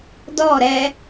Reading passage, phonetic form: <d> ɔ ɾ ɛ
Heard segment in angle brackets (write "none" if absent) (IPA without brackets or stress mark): d